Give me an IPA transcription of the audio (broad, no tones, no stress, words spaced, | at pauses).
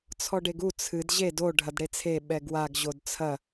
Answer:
t͡sʰɔɖeɡu t͡sʰɨd ʑed o ɖʱɐdɽet͡sʰe ɓɛɡwaɡ ʑodt͡sʰɐ